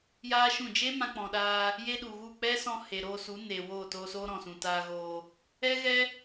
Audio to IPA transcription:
j aː˦ ʃ ũ˦˨ d͡ʒ e˦ m ã˧ k͡p ɔ̃˨ ɗ aː˧ | j e˦ ɗ u˨ ɣ u˦˨ k͡p ɛ˦ s ɔ̃˧ h e˨ ɾ oː˧ s u˨˦ n eː˨ w oː˦˨ t oː˧ s oː˦ ɾ ɔ̃˨ s ũ˨ t aː˧ ɣ oː˧ | ɛ˦ ɣ ɛ˦

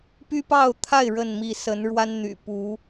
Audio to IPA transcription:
p y˦ p ɑ˥˨ ʊ̯ t̪ʰ a˥˨ ɪ̯ ɻ ə˥˨ n m i˥˨ s ə˨˦ n ɻ w a˦ n n̪ y̰˨˩ p u˨˦

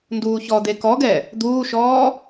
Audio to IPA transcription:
n d uː ç ɔ d̪ e k ɔ ɡ ɛ | d̪ uː ʃ ɔː

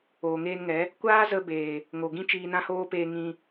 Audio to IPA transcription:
oː˨ ŋ eː˧ n ŋ ɛ˨˦ | kʷ aː˦ z ə˧ b eː˨ | ŋ o˨ ɡ ĩ˦ t͡ʃ iː˧ n ã˦ h oː˦ p eː˧ ŋ ĩ˧

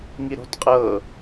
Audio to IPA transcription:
ŋ i ɾ o̤ t qʼ ɤ

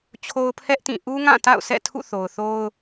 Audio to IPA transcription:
t͡ɕʰ o˦ ʊ̯ pʰ ɛ˦ ʔ t ĩ˦˨ ʔ u˦ ŋ ã˦˨ t a̰˦˨ ʊ̯ s ɛ̰˦˨ tʰ ṵ˦˨ θ o˨ ʊ̯ θ o˦ ʊ̯

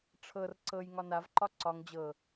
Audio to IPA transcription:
ʈ͡ʂʰ ɤ r ǀ ɤ j ŋ ɒ n a v ǃ ɒ ǀ ɒ ŋ d͡ʑ ɤ

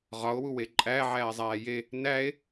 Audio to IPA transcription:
ʁ ɒ o̯ w u w e ǃʼ æ ʕ æː zˤ æː j e | n æ e̯

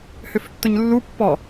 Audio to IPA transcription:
h ʏ f tː ʊ ɲ lː u pː ɔ

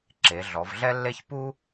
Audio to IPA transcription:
ǁ e˩˧ ɮ ɔ˩˧ v ɮ ɛ˥ lː e˥ ç p u˥

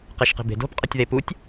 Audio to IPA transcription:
q e ʃ q i̤ b e̤ d o̤ p qʼ ʌ tʲ ð e p u tʲ

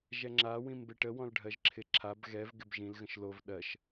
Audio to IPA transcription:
ʒ ɛ ŋ͡ǁ a w ĩ m b ɪ ʈ ə w ɔ̃ l ɖʱ ɜ ʒ ǁʰ ɪ ǁʰ a b ɣ ɛ v ɡ ɪ b ʒ ĩ l ɣ ə̃ ʃ l o v ɗ ɜ ʃ

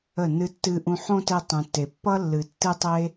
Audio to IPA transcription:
ə˦˨ n ɨ˦ tː ɨ˦ ʔ ũ˧ ħ õ˦ t e˧ tˤ ũ˨ tː e˨ pː ʌ˦ lː ɨ˨ tː ɨ˦ tˤ e˦

